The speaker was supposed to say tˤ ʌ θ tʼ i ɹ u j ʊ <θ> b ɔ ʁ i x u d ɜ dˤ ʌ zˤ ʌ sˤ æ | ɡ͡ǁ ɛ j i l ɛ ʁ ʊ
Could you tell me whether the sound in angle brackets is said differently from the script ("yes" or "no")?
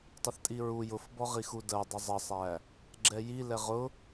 yes